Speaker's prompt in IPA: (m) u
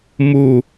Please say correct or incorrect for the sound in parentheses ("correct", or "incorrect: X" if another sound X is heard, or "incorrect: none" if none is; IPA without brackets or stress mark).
correct